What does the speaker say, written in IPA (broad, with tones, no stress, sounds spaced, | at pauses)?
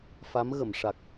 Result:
f a˧˥ m ɣ ə˨˩˨ m ʂ a˨˩ k̚